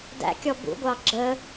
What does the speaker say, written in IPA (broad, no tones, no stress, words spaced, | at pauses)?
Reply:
dæ̰ kʲɔbṵɡʷɑ ɡ͡ǁə